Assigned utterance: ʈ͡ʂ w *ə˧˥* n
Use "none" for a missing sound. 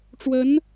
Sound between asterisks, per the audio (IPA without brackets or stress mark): ə˧˥